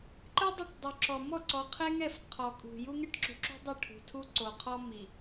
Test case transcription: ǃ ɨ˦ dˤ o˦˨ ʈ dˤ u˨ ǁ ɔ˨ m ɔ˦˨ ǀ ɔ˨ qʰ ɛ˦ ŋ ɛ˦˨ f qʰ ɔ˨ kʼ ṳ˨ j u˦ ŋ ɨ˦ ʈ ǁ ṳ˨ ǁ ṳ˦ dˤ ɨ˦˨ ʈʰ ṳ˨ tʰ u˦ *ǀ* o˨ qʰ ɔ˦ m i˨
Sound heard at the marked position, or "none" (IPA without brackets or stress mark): ǀ